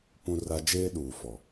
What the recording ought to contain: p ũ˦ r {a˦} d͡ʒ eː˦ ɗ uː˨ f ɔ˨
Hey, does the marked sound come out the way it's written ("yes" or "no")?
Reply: yes